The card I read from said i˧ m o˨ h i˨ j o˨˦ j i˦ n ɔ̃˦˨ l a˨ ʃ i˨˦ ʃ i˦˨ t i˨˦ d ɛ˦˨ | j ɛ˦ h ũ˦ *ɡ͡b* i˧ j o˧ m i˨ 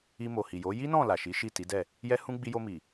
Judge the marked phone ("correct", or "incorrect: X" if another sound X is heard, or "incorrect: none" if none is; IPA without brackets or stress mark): correct